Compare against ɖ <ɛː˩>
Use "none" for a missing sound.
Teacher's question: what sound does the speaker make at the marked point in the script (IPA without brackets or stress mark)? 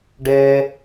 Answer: ɛː˩